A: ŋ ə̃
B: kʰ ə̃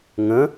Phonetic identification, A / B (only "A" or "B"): A